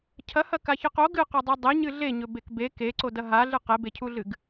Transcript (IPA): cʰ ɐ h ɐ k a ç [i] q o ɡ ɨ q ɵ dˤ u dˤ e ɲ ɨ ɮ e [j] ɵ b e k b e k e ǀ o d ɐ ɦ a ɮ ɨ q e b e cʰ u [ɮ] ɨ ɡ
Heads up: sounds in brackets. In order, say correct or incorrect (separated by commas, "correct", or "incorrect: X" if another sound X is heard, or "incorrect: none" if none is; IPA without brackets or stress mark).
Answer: incorrect: ɨ, incorrect: ɲ, correct